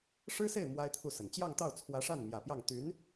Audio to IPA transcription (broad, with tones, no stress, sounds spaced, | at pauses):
ʂ ɻ̩˥ s e˥˩ ɪ̯ m w a˥ ɪ̯ t̪ʰ u˥˩ s ə˨˩ n t͡ɕ j ɑ˥˧ ŋ t̪ ɑ˥˩ ʊ̯ t͡sʰ w ä˧˥ ʂ a˥˩ n m j ä˨˩ p j ɑ˥˩ ŋ t̪ y˧˥ n